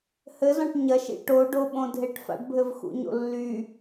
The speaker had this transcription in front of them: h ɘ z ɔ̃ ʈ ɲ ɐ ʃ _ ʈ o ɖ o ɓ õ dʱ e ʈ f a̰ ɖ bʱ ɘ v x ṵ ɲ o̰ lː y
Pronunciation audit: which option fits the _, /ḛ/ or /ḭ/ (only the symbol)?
ḭ